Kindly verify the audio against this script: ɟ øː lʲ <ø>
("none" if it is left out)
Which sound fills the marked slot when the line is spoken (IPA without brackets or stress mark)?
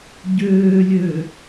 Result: ø